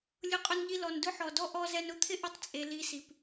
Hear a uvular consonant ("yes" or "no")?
yes